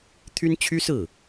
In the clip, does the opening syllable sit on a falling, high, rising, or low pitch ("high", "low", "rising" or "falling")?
high